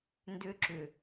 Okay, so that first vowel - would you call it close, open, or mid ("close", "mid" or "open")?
close